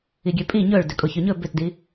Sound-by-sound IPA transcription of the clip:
iɡʲøpʼi ɲɵɭ døkʼoçøɲɵ bʏtdi

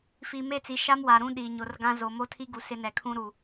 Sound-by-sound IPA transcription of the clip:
fiː˨me˦˨t͡si˨ ʃa˦mwa˨ɾũ˦˨ ɗiː˨ɲo˨rɡã˦ zo˨mo˦tʰi˦ɡu˨ sɪ˦nɛ˨kʰũ˦ ɾu˨

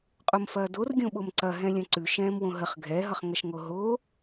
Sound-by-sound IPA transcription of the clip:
qʼomfɐːdor ɡʲõɓomǀɐ ɦɛ̃lʲɐ̃ǀʉ ʃɛ̃ːmwõɦəχ ɡʱɛ ɦʌχŋɐʃŋoɦo

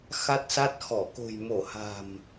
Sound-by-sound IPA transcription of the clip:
xa˦˥t̚sa˦˥t̚xɔ˧˩ ko̤˨˩jmo˧˩ha̤˨˩m

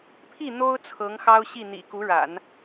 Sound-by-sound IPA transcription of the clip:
pʰi˥˩ n̪o˥ʊ̯ t͡sʰɤ˧˥ŋxɑ˥ʊ̯ɕi˥˩ n̪ḭ˨˩ku˧˥ɻa̰˨˩˦n

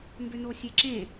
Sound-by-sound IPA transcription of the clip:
mbʏnosʲeǁẽ

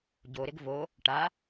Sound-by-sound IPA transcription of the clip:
ɟoɾɪɡ vo | ʈa

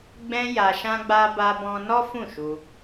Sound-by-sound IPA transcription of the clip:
ɡ͡bɛ̃˧ ja˧ʃã˦ɡ͡ba˦ ba˧bɔ̃˧ nɔ˦ fũ˦˨ʃu˧

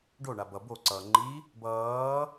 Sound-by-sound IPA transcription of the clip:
ɖoɳa bʌ boǀʌː ŋ͡ǃi | bʌː

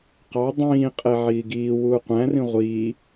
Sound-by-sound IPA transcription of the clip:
qɑ dˤĩːqʼe ʕiːɡiː wuːqʷæ̃rĩ ʁʷiː

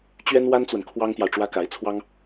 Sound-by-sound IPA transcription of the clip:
t͡ɕɥɛ˥nwa˥nt͡swə˨n kʰwɑ˥ŋt̪jɑ˨ʊ̯ ʈ͡ʂwä˥ka˧˥ɪ̯t͡sʰwɑ˥ŋ

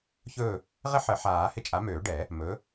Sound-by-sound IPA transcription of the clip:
çɵ˦˨ | ʁɪ˥ħə˨˩˦ħaː˨˩˦ hɪ˦˨t͡ʃʼa˨˥møː˨˩˦ɖɛ˨˩˦ | mɵ˨˥

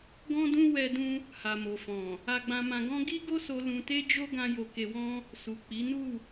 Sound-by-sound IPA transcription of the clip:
ɡɔ̃˦dũ˦ wɛ˧dũ˧ | ha˨mo˨fɔ̃˨ | a˧ɡ͡bã˧mã˧ɡɔ̃˦ ɡi˦ɡo˦so˧ lũ˧te˦d͡ʒo˦ ɡã˦jo˧ ke˧wɔ̃˦ | su˨k͡pi˨˦ nu˦˨

